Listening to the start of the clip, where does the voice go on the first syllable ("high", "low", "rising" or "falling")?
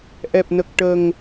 low